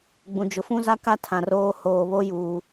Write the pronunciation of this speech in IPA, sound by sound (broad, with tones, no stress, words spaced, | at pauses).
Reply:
ɡ͡bũ˨d͡ʒʊ˨ fũ˦za˦ka˦ tʰã˨roː˦ hoː˨βo˦ juː˨